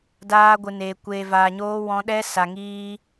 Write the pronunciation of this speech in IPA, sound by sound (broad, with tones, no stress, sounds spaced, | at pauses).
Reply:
d aː˦ ɡʷ ɨ˧ n eː˧ kʷ eː˧ v aː˧ ɲ oː˦ w ɔ̃˦ ɗ ɛ˦ s a˧ ŋ iː˦